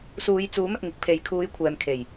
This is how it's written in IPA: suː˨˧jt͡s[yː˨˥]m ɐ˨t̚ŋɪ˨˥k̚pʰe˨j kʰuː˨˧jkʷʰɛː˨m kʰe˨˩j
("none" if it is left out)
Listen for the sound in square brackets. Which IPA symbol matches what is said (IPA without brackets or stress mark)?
uː˨˥